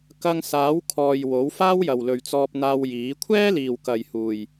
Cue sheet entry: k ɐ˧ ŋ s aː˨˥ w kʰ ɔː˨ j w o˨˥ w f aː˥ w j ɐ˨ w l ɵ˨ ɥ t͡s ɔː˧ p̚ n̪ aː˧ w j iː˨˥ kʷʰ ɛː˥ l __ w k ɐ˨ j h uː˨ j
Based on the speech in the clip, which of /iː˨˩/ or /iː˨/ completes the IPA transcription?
iː˨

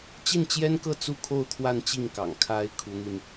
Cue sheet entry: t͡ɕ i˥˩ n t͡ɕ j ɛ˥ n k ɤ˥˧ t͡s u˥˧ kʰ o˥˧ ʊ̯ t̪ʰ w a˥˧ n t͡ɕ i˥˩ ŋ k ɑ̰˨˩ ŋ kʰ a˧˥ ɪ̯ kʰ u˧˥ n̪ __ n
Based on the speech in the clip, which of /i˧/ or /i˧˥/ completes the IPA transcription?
i˧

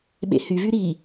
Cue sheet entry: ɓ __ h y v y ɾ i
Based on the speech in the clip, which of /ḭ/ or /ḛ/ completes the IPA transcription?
ḛ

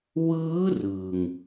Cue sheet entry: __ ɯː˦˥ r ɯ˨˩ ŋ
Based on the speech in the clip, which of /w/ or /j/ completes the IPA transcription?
w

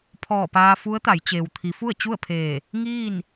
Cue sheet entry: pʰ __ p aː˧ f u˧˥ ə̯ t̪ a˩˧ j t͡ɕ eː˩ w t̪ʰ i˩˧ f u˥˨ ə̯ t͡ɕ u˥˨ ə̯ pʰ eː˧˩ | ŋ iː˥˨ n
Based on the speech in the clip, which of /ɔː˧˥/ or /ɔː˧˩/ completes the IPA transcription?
ɔː˧˩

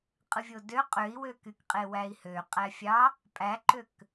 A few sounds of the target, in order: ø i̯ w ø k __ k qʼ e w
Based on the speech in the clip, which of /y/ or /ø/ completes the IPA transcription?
y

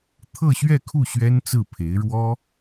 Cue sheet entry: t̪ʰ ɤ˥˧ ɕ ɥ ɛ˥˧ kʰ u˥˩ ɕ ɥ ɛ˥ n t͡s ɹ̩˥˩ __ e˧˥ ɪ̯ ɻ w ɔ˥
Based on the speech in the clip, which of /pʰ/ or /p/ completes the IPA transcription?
pʰ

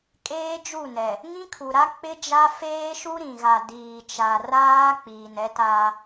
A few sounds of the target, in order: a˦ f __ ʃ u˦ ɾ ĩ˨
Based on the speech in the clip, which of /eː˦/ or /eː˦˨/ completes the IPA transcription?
eː˦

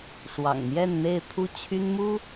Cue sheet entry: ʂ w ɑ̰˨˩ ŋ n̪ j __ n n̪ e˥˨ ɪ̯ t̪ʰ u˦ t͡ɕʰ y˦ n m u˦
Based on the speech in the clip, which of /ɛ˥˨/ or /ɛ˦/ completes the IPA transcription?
ɛ˥˨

